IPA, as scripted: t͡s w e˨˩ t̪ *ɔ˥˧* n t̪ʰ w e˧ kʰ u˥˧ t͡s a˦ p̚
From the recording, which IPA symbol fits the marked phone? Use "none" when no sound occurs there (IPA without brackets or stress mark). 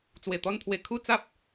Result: ɔ˥˧